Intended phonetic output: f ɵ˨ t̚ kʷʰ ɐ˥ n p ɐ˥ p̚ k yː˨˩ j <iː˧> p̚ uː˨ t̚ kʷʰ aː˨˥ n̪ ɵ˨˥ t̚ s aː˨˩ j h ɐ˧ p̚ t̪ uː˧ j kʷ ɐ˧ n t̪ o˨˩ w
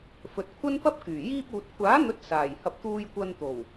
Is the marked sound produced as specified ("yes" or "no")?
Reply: yes